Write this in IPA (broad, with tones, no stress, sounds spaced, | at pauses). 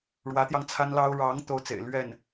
ɻ w ä˧˥ t̪ j ɑ˧ ŋ t͡sʰ a˥ n l ɑ˥ ʊ̯ ɻ ɑ˧˥ ŋ t̪ o˥ ʊ̯ t͡s ḛ˨˩ ɪ̯ l ɥ ɛ˥˩ n